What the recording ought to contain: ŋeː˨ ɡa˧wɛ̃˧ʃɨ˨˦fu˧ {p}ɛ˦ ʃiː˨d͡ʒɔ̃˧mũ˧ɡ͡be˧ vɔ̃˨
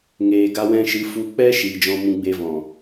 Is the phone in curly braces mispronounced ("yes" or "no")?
yes